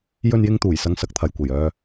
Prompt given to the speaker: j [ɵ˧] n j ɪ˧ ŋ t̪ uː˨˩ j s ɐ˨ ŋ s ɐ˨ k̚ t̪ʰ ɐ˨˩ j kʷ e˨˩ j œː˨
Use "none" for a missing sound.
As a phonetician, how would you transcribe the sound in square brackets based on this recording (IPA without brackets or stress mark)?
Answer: ɵ˧